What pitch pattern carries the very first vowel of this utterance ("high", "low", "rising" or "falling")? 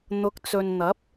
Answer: rising